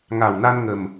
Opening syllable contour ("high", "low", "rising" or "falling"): low